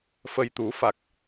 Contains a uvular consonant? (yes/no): no